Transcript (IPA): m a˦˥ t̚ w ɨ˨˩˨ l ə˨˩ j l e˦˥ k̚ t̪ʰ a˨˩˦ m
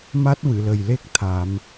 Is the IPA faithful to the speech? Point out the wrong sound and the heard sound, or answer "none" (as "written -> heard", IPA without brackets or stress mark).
none